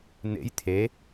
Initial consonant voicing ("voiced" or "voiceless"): voiced